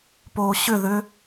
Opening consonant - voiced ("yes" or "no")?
no